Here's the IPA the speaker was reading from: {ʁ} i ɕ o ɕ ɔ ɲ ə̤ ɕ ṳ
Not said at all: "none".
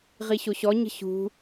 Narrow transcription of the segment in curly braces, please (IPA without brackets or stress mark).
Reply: ʁ